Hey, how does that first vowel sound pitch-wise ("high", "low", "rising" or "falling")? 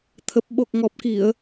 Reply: low